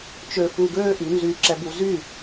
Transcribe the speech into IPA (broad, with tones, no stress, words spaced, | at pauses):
t͡ʃø˧fu˧ɡøː˦ ʔy˨˦nzyː˧ǁɛ˧bu˧ zy˦˨